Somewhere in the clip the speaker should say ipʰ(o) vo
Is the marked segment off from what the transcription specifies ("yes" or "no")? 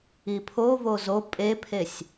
no